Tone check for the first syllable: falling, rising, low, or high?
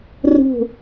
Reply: falling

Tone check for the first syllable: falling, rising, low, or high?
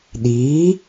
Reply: rising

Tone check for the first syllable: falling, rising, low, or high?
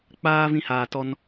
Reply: high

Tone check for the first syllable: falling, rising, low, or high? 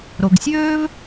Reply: low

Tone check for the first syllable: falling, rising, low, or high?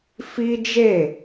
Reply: high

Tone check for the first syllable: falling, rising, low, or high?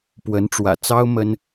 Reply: rising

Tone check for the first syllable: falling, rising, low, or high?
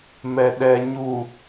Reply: low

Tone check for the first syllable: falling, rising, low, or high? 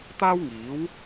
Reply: high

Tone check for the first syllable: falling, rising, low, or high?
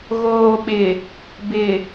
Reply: low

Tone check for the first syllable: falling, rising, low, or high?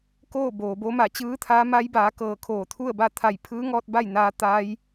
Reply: falling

